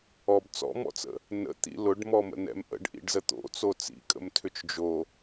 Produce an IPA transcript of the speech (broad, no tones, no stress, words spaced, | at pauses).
ɔb t͡sɔ̰mɔ̰t͡sə̰ | nə̰ t̪ḭlʊɖmɔ mə̰nɛ̰mʔə̰ɖ ʔḭɖzət̪o̰ t͡sot͡sḭkʼə̰m tʰʏt͡ʃd͡ʒo